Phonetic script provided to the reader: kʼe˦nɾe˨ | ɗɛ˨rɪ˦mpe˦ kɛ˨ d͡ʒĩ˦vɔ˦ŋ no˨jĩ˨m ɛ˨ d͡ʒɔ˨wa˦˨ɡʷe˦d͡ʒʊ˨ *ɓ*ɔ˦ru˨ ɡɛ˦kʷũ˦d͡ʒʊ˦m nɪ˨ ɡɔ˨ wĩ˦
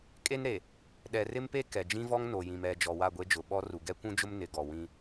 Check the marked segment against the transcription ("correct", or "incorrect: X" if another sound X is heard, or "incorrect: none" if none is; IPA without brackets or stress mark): correct